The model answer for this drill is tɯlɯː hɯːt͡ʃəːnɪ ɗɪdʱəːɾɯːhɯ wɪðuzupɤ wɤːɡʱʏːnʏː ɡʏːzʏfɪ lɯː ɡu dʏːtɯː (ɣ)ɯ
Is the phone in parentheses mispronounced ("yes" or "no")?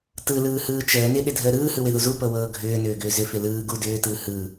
yes